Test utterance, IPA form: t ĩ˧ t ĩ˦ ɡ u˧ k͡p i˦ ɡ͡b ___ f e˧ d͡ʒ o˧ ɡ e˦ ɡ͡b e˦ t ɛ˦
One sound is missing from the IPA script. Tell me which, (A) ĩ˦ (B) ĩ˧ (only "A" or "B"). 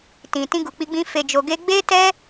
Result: A